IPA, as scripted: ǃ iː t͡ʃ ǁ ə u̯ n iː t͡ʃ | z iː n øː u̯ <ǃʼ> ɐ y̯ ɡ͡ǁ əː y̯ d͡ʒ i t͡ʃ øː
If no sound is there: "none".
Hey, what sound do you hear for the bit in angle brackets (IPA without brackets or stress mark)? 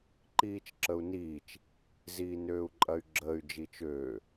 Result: ǃʼ